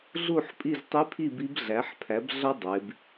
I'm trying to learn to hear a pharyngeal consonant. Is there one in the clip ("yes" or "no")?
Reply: yes